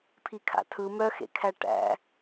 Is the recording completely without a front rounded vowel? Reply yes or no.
no